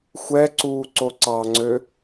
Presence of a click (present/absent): present